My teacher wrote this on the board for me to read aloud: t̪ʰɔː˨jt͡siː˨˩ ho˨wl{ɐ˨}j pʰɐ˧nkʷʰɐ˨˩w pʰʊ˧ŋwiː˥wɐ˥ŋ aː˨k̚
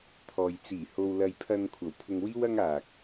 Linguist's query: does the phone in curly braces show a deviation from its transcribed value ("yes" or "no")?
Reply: no